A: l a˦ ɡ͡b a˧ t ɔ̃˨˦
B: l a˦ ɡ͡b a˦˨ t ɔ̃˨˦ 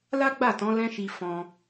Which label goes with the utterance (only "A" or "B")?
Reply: B